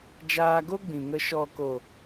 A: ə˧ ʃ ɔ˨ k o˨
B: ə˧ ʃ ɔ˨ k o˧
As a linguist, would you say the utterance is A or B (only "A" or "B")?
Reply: A